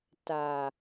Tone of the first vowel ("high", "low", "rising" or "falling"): low